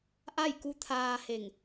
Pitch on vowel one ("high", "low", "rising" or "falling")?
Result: falling